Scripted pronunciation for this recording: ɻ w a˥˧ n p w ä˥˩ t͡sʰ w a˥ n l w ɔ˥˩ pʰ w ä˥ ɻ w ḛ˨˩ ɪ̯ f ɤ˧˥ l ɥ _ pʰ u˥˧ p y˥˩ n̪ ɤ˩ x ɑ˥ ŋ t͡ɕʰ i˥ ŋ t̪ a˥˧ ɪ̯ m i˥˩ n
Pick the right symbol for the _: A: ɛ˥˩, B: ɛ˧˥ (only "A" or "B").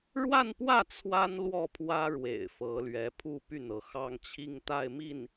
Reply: B